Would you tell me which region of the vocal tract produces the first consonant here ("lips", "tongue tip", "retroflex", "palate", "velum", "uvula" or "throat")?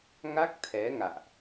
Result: velum